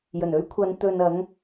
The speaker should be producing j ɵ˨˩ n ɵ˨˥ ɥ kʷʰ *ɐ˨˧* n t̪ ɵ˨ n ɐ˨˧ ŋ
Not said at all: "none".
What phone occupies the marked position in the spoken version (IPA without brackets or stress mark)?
ɐ˨˧